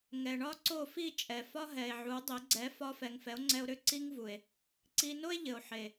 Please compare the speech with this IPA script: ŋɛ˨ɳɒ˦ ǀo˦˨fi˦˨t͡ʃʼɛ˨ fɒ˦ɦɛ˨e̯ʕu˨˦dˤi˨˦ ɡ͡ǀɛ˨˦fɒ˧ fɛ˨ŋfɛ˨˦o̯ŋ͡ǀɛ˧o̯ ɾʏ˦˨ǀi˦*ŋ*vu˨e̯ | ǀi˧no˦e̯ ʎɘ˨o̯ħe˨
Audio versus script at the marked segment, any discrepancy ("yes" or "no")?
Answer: no